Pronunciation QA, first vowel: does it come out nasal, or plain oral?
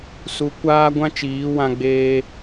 oral